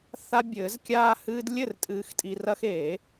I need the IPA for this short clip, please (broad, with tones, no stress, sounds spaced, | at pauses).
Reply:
θ a˦ bʲ ɘː˨˩˦ z kʲ aː˦ h ɨː˦ d lʲ ɘ˥˩ r tʼ ɨː˨ x tʼ i˨ r ɐ˦ x e˨˩˦